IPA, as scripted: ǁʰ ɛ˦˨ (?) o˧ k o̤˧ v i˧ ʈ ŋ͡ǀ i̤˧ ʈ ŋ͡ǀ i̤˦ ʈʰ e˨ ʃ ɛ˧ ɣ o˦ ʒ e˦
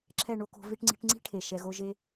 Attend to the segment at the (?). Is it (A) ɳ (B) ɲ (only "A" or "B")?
A